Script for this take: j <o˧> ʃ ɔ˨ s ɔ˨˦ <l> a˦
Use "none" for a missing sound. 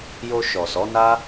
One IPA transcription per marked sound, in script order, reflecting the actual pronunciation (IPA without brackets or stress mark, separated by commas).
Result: o˧, n